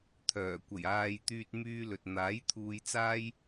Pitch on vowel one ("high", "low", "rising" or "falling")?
low